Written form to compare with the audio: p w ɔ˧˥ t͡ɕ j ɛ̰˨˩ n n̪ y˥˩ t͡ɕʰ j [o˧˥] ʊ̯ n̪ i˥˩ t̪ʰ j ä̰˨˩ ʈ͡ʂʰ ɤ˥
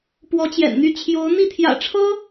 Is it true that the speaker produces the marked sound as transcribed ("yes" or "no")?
yes